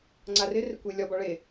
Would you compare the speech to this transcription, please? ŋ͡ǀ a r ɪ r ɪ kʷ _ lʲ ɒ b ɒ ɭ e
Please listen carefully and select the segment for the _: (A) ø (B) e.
B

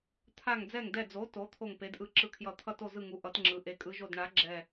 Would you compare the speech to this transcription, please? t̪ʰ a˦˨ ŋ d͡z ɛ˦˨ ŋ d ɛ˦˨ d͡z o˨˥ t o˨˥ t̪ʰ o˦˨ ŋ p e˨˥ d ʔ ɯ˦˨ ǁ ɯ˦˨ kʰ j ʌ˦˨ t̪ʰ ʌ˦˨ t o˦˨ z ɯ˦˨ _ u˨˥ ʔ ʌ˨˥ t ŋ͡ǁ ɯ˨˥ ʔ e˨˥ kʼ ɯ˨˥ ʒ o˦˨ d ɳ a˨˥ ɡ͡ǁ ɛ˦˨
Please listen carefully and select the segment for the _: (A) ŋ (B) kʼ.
A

